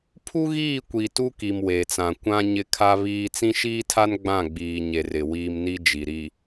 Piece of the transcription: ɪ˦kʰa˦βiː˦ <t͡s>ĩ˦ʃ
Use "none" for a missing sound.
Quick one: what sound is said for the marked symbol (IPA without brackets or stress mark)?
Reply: t͡s